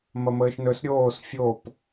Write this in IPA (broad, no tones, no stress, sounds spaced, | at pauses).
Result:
m ɐ m əː ʃ n ɵ s ɾʲ oː s fʲ o p